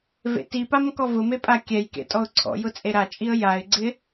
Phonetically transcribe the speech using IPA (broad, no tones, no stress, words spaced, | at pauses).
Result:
vḛtipam kɔvʊme pʼakʲɛjkḛ tʼɔʊ̯ǀʰɔ̰jʊ t͡sʼeɾat͡ʃʼiə̯ jaɪ̯ɡ͡ǀɪ